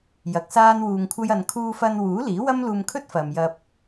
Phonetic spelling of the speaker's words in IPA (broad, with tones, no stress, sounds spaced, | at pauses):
j ɐ˨˥ k̚ s aː˥ n w uː˧ ŋ kʷʰ ɐ˥ j ɐ˨ n kʰ uː˧ f ɐ˧ n w uː˨˥ l iː˨˥ w ɐ˥ m l uː˧ m kʰ ɵ˥ t̚ f ɐ˨ m j ɐ˧ p̚